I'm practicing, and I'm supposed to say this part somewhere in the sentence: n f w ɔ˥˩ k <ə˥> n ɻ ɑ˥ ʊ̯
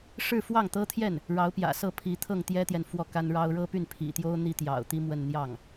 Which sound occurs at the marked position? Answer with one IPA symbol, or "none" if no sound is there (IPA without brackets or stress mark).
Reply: a˥